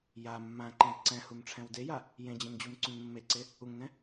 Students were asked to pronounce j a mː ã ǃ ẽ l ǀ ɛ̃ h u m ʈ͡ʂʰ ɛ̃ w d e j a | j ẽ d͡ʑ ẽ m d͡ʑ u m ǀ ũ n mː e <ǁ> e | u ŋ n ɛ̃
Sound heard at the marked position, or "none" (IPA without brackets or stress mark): ǀ